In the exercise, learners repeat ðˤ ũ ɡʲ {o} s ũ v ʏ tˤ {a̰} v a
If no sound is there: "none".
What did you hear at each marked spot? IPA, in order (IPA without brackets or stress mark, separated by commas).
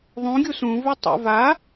u, a̰